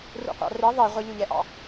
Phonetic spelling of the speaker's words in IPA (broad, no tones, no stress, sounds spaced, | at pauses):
r ṵ qʷ ɑ̰ r i ðˤ i ʁʷ ə ʎ u ʎ ɛ ʔ ɑ̰